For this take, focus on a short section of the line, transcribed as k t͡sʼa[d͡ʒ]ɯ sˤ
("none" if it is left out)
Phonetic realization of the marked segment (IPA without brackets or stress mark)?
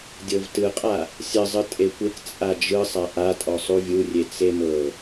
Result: d͡ʒ